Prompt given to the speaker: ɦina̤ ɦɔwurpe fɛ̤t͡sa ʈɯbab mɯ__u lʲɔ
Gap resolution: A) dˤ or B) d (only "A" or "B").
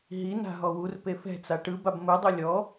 A